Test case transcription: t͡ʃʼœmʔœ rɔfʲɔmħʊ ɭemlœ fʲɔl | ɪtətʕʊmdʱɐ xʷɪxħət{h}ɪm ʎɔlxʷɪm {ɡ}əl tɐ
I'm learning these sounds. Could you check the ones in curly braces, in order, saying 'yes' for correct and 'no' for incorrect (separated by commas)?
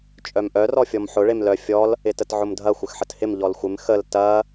yes, no